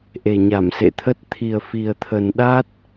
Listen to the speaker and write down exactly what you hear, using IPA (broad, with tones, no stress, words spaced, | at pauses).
ʔe˨˩ɲa˧˩msḛ˧˨t̪ʰə˦˥t̚ t̪ʰi˨˩ə̯fi˨˩ə̯t̪ʰə˨˩n ɗa˦˥t̚